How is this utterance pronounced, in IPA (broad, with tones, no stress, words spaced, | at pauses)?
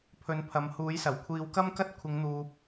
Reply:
pʰɵ˨˥npʰɐ˨˧mhuː˨˥jsɐ˨˩w kʷʰiː˨˧wkɐ˥mkɐ˥t̚ kʷʰɪ˨˧ŋn̪uː˨p̚